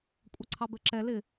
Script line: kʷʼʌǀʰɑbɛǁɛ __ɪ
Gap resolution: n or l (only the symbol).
l